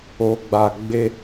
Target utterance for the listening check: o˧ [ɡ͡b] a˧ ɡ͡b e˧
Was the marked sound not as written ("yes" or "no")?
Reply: no